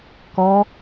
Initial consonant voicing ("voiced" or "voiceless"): voiceless